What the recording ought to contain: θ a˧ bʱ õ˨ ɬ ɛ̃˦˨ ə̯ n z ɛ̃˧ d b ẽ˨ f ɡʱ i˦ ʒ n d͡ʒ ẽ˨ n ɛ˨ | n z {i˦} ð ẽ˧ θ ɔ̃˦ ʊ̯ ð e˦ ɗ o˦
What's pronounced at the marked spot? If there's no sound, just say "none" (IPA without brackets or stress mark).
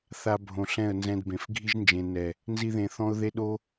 i˦